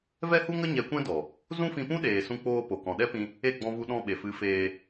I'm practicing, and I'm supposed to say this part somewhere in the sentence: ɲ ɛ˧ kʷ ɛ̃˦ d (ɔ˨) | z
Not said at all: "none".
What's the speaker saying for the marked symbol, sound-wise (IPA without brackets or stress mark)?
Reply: ɔ˨